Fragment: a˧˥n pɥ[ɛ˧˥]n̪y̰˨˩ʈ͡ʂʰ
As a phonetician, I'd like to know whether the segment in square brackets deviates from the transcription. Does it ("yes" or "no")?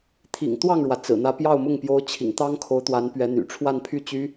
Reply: no